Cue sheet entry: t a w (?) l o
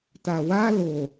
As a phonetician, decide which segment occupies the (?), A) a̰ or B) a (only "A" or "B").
B